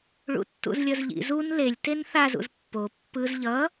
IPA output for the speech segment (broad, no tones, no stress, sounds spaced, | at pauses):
ɭ ṵ tː ṵ z lʲ ʌ z ʎ ḭ z u n l e lʲ t e n θ a z ṵ z pː o pː ɯ z ʎ ʌ